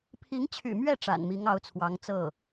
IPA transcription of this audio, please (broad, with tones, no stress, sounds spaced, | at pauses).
pʰ i˧˥ ŋ t͡ɕʰ y̰˨˩ m ɥ ɛ˥˩ ʈ͡ʂ a̰˨˩ n m i˧˥ ŋ ɑ˧˥ ʊ̯ t͡sʰ w ɑ˧˥ ŋ t͡s ɤ˥˩